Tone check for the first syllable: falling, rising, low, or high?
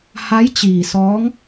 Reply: rising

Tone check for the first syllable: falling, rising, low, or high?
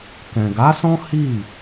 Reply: low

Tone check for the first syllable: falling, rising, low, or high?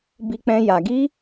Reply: high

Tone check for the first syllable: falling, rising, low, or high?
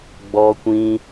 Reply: high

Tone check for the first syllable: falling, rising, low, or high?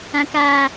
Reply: high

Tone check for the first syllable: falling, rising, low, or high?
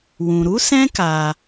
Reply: low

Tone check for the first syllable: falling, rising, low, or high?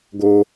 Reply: low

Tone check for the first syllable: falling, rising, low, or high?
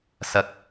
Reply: low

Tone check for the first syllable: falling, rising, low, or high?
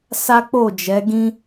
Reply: high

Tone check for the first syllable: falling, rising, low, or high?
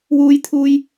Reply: high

